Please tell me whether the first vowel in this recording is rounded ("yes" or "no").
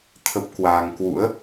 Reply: no